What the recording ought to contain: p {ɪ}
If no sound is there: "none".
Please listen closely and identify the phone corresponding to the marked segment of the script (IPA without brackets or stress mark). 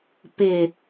ɪ